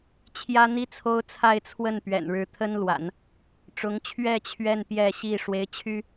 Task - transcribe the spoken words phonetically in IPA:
t͡ɕʰ j ä˥ n̪ i˥ t͡sʰ o˥ ʊ̯ t͡sʰ a˥˧ ɪ̯ t͡sʰ w ə˥˩ n p ɥ ɛ̰˨˩ n ɻ ɻ̩˧˥ t̪ʰ ə˥ n l w a̰˨˩˦ n | ʈ͡ʂ ʊ˧˥ ŋ t͡ɕʰ ɥ ɛ˥˧ t͡ɕʰ ɥ ɛ˥˧ n p j ɛ˥˧ ɕ i˥˩ ʂ w e˧˥ ɪ̯ t͡ɕʰ y˥

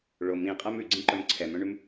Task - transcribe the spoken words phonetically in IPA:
ɭ o m ĩ qʼ ɛ m ʉ ɡ͡ǀ ĩ ǃ œ m ǀʰ ɛ m œ̃ ɳ ʉ m

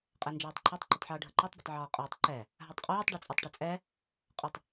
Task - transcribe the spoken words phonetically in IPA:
qʼ ɛ n d͡ʒ ɔː tˤ ǃʰ ɛ tˤ ǃ ʏ tˤ ħ ɤː ɖʱ ə ǃ ɛ tˤ b ə tˤ ʕ ɔː qʼ əː tˤ ǃ ɛ | ɦ a tˤ qʼ uː tˤ ɖ i t͡sʼ ɔ tˤ ʈ ɛ t͡sʼ ɛ | qʼ ə tˤ

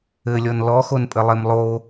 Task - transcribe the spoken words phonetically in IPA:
ɘ lʲ ɔ n l ɔ x o n pʼ ɘ lˠ e m lˠ o

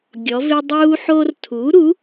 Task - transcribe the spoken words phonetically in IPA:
ɡʲ ɔ˩˧ v ɪ˧ dˤ uː˧ ħ o˧ r tʰ u˩˥ ɾ u˩˥

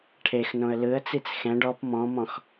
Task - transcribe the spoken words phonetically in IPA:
ʈʰ e x n õ ə̯ l ɯ ə̯ t͡s i t͡s x ɛ̃ ɖ ɔ p m ɔ̃ m ɔ̃ x

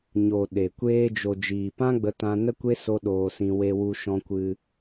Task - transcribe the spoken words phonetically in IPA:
ɲ o˨ ɗ e˨ kʷ eː˧ d͡ʒ o˨ d͡ʒ iː˨ p ã˦ ɡ͡b ə˧ t ã˧ n ə˦ kʷ e˦ s o˦ ɗ oː˧ s ĩ˧ w e˧ w u˧ ʃ ɔ̃˧ kʷ ɨ˧

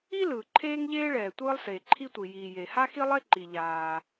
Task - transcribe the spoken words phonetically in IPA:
i˥ l ɯː˩ ǃʰ eː˥ ŋ ʎ eː˥ ɭ ɛː˩ tʷ ɯː˥ lˠ s eː˩ ǃʰ i˥ tʷ i˩ j iː˩ j e˩ h a˥ x i˥ lˠ e˥ ǃ i˩ ʎ aː˩

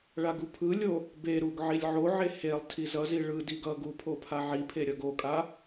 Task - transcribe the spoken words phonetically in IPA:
ɭ a ɡ u pʰ ɯ lʲ o | b e ɾ u ɡ ʕ i lʲ ʕ o ʕ e h e lˠ tʰ i z ʌ z i ɭ ɯ d i ɡ ʌ ɡ u pʰ o pʰ a ʕ i pʰ e ɾʲ ʌ ɡ o kʼ a

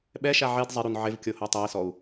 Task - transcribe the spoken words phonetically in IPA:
ɓ ɛ ʃ a ʕ e d zˤ ɪ ɾ u n ʕ ɪ v kʲ o h o tˤ ɛ i̯ s ɔ u̯

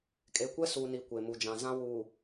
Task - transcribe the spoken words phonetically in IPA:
kʼ e˨ kʷ ɛ˦ s uː˨ n i˨ kʷ e˨ m u˨ d͡ʒ ã˨ z ã˦ w uː˨

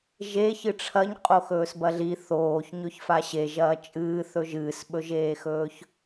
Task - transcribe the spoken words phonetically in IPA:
ʒ e ç ɨ ʈ͡ʂʰ ɐ ɲ qʼ o x ɵː s b ɐ ɮ i θ oː ç ɲ ɵ ç f a ɕ e ʒ ɐː t͡ʃʼ ɨː θ ɵ ʒ ɨː s ɓ ɵ ʒ eː x ɵː ç

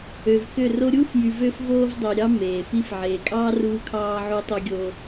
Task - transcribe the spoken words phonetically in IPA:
ø˨ v k ø˦˨ r o˦ ɾʲ uː˦ f j y˨ v ø˦ f v oː˦ v dˤ ø˨ ɾʲ ɑ˦ m eː˨ f i˦ f ʕ eː˨ kʼ ɑː˦ r uː˦ kʰ ɑː˦ ʕ u˦ tˤ o˦ ɡʲ o˦

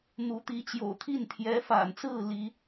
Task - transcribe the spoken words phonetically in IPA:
n̪ u˧˥ t̪ i˧˥ t͡ɕ j o̰˨˩ ʊ̯ t̪ʰ i˥˩ n t̪ʰ j ɛ˧˥ f a̰˨˩ n t͡s ɹ̩˥˩ l i˥

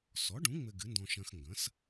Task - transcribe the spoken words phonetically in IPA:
s ɔ˩˥ ɖ ũ˩˥ ŋ͡m ɘ˧ ɡ ɨ˩˥ n d ɔ̃˧ ʃ ɐ̃˧ x ŋ ɡ ɐ̃˩˥ s

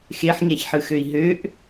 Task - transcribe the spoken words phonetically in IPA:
x e ħ ɲ æ ç ħ ɯ x ø i̯ ɦ ø ʔ

